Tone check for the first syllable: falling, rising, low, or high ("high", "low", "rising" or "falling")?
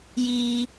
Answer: high